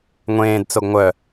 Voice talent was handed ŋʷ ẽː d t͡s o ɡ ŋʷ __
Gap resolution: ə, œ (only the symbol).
œ